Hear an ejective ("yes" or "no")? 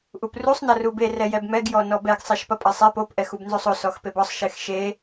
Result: yes